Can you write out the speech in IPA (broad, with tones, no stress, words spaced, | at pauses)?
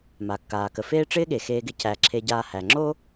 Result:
ma˩kːaː˩kə˩ feː˦ ʈ͡ʂɪː˦ɠe˩xeː˨ɡɪ˨ cæ˩ ǁʰe˨ɟaː˨hæ˩ŋ͡ǁo˥